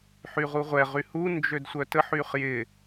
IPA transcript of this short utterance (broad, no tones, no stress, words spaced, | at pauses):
ħyʁuʁʷɛʁy hu nd͡ʒødsʷœtəħyχ jɪ